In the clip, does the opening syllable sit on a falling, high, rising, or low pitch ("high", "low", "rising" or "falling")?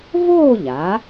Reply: falling